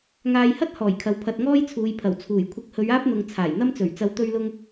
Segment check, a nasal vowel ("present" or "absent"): absent